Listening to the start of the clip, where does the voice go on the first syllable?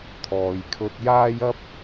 low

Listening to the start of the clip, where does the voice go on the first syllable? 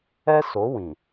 high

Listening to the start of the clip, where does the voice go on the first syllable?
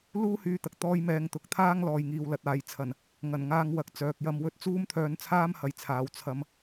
high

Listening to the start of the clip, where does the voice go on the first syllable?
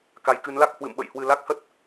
rising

